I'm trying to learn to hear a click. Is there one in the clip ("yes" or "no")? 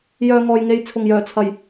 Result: no